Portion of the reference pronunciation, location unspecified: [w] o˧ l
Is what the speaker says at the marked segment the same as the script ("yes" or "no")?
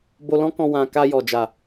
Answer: no